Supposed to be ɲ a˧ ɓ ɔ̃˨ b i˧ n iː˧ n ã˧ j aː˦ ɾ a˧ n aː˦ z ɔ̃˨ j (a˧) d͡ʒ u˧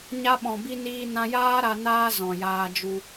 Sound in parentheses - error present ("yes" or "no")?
yes